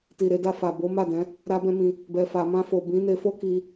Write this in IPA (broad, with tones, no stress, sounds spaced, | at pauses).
t i˨ ɾ e˧ d a˧ f a˨ b o˨˦ m a˦˨ d ɛ̃˨˦ | ɾ a˦ b ɛ̃˦ m ĩ˧ | b ɛ˨ f a˨ m ã˧ f o˨ b ĩ˨˦ n e˧ f o˦ k i˧